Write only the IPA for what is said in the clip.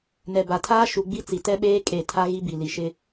nɛ˨ba˨tʰaː˦ ʃu˨ɡ͡bi˦t͡si˨ tɛ˦ɓeː˦ kʼe˦˨ tʰa˦ ɣi˦bi˨ li˨ʃɪ˦

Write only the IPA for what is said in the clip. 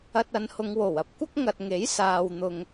ɐ˧t̚ɐ˨˧nhʊ˨˧ŋ wo˨˩wɐ˧p̚kʷɐ˥k̚ ŋɐ˨t̚ŋe˨˥j saː˨wn̪ʊ˨ŋ

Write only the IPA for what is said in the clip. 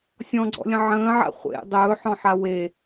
sʲɔ̃ɡ͡ǀɔ̰lʲə̃ ʕə̃ːʕa̰ χʷḛ dˤɵːħɔ̃ħa we

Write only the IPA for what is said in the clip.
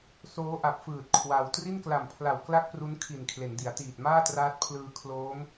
soː˦˥ʔa˨˩p̚fɯː˨˩t̚ kʰwa˧w tri˥˩nkla˨˩mpʰla˨˩w kla˥˩k̚pru˦˥n kʰi˨˩n kʰle˩˦ndi˩˦a̯tiː˨˩t̚ maː˥˩traː˦˥t̚pʰlɯː˧ kʰloː˦˥m

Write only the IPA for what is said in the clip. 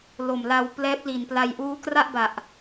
lo˨˩mla˧w plɛː˦˥p̚li˨˩npla˧j ʔuː˦˥kra˥˩ʔba˨˩ʔ

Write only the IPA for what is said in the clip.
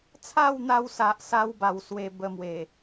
t͡sʰa˥˧wn̪a˧wsa˨ʔsa˧w ba˧wswe˧ bə˧mwe˨˩

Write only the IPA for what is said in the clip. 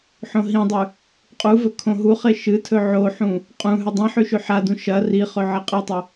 ħõɦĩdˤʉ | qʼuvɵ kʰõɦuχe ʃɨtʰɵ ʕoħũ | qʼũ ɦʉdˤĩħʉ ʃʉħadũ ʃɐ riχɵ ʕɐqʼetˤɐ

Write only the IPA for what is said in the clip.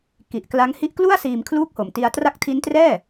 ki˨˩ʔkla˦˥ŋ hi˦˥ʔklu˥˩a̯ siː˧mkʰluː˥˩k̚ho˨˩m ti˧a̯ tra˦˥k̚tʰi˦˥ntrɛː˥˩

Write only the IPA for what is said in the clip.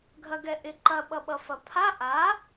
ɡʱɐɡɛʔɪ ǃɐɓʌɓʌ fɐpʰa ʔa

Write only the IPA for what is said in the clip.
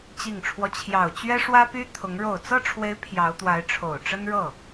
t͡ɕi˨˩ŋʈ͡ʂʰwɔ˦ t͡ɕʰjɑ˨˩ʊ̯t͡ɕɥɛ˥ʂwä˥py˥ t̪ʰʊ˧˥ŋ ɻo˨˩ʊ̯t͡sɤ˥˩ʈ͡ʂʰwe˧˥ɪ̯ pʰjɑ˧˥ʊ̯t̪wa˧˥ɪ̯ ʈ͡ʂʰo˨˩ʊ̯ʈ͡ʂə˥nɻɤ˥˩

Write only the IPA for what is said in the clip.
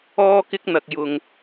ɔː˥kɪ˥k̚n̪ɐ˧k̚ jʊ˧ŋ

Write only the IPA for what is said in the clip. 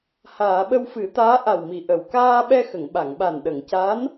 haː˨˩˨ɓə˧wfɨ˨˩˦t̪aː˧˥ ʔa˨˩wmi˨˩˨ ʔə˨˩w kaː˧ɓɛ˧ xə˨˩˨ŋɓa˨˩˨ŋɓa˨˩n ɗə˨˩˨ŋca˧˥n

